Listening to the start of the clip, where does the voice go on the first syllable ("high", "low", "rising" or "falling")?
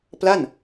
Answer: falling